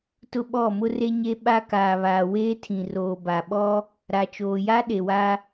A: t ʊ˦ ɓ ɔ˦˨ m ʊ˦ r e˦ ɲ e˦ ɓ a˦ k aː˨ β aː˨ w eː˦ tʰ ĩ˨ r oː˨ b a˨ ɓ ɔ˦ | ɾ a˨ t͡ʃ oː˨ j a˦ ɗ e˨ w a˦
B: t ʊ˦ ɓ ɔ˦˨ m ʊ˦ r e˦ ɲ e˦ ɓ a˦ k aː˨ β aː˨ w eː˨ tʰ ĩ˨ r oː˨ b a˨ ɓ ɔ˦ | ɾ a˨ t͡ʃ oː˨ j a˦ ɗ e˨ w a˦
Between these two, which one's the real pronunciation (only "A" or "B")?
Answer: A